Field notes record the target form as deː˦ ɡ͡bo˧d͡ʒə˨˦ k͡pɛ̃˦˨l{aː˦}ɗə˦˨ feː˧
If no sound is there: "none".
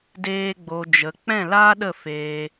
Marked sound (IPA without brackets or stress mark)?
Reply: aː˦